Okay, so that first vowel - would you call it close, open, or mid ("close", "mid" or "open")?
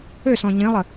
mid